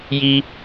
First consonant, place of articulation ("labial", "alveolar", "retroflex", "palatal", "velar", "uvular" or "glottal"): palatal